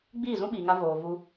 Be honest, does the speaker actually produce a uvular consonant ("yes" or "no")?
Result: no